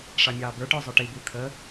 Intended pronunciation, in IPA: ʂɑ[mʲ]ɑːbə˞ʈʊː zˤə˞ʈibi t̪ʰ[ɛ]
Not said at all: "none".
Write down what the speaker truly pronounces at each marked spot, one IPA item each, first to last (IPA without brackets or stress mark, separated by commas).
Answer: mʲ, ə